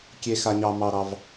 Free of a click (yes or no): yes